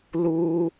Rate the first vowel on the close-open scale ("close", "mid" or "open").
close